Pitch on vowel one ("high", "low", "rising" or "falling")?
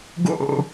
falling